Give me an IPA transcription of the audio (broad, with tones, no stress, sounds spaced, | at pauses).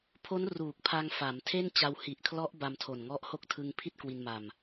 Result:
pʰ o˦˥ n r uː˨˩ k̚ pʰ a˧ ŋ f a˩˦ m tʰ e˥˩ n t͡ɕ a˧ w h i˨˩ ʔ kʰ l ɔ˦˥ ʔ b a˧ m tʰ o˨˩ n ŋ ɔ˦˥ ʔ h o˦˥ k̚ tʰ ɯ˧ ŋ pʰ i˥˩ t̚ k w i˧ n m a˧ m